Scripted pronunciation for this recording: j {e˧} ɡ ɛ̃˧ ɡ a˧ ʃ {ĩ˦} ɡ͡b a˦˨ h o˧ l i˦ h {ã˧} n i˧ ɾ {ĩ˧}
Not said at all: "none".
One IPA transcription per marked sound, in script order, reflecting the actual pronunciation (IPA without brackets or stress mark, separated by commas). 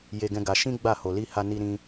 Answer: e˧, ĩ˦, a˧, ĩ˦